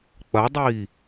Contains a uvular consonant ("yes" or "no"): no